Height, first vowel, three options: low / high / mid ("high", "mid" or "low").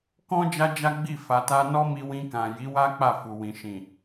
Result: mid